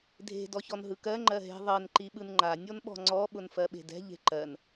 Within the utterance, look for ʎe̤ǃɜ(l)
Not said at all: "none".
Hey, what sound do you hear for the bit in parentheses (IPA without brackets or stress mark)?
n